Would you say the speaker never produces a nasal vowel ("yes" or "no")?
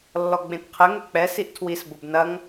no